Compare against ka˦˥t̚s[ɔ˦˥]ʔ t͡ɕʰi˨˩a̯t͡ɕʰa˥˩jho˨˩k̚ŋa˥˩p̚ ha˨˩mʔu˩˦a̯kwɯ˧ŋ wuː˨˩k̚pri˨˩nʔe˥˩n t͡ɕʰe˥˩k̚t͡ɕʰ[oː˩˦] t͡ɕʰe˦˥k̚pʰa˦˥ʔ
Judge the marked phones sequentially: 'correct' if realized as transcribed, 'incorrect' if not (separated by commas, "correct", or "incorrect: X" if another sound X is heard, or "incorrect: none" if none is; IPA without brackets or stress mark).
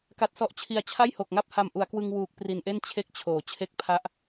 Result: correct, correct